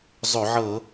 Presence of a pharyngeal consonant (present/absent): present